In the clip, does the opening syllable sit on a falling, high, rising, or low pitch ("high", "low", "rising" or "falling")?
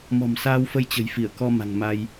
low